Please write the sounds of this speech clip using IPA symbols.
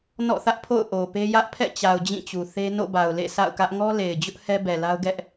n ɔ̰˦˨ θ ä˦ ʔ pʰ o̰˦˨ ʊ̯ ʔ o˨ p e˦ j ä˦ ʔ pʰ ɛ̰˦˨ t͡ɕ a˨ ʊ̯ d͡ʑ ĩ˦˨ t͡ɕ u˨ θ e˦ n o̰˦˨ b a˨ ʊ̯ l ḛ˦˨ sʰ a̰˦˨ ʊ̯ k ä˦ ʔ ŋ ɔ˦ l e˨ ɪ̯ d͡ʑ ʊ˦ ʔ h ɛ˦ b ɛ˨ l a˦ ʊ̯ ɡ ɛ˦ ʔ

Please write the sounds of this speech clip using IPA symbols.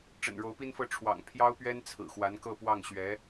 ʈ͡ʂ ə̰˨˩ n ɻ o˧˥ ʊ̯ p i˥ n f ɤ˥˩ ʈ͡ʂʰ w ɑ̰˨˩ ŋ pʰ j ɑ˥ ʊ̯ p ɥ ɛ˥ n t͡sʰ ɹ̩˨˩ x w a˧˥ n k ɤ˥˧ p w ɑ˥˩ ŋ ɕ ɥ ɛ˧˥

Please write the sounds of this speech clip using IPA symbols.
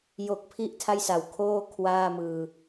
j o˨˩ k̚ pʰ i˥˩ ʔ tʰ a˥˩ j s a˨˩ w kʰ oː˥˩ kʰ w aː˥˩ m ɯː˧

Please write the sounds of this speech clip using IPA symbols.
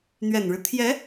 n̪ ɥ ɛ˨˩ n ɻ ɻ̩˦ t̪ʰ j ɛ˧˥

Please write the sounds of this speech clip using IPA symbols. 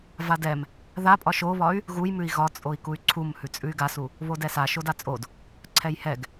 v a d ɛ m | ð a pʼ ɒ ʃ o β ɒ y̯ | ɣ u j m ʉ i̯ ɣ ɒ t͡sʼ o i̯ k u y̯ ǀʰ u m h ʉ t͡sʼ ʉ y̯ ɡ a s u | β o d ɛ s a ʃ o d a t͡sʼ o d | ǀʰ ɛ j h ɛ ɡ

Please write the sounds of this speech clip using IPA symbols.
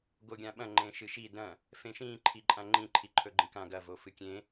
ɡ o ɡʲ ã ɓ ɐ̃ ŋ͡ǃ ẽ ʃ ɨ ʃ i d ɐ̃ | f ẽ ʃ ĩ ǃʰ i ǃʼ ã ŋ͡ǃ ĩ ǃʰ i ǃʰ ɵ ɡ͡ǃ ĩ k ã ɡ ɐ v o f ɨ kʲ ẽ

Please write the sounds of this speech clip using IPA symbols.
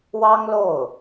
w ɑ˥ ŋ l o˥˩ ʊ̯

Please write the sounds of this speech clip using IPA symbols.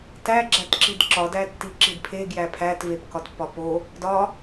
t æ ɡ͡ǁ æ t ǁ i d ǁ ɒ d æ tː i ǁ i d pʰ e ɡ j æ pʰ æ t v e p k ɒ t pː ɒ p o | d ɒ

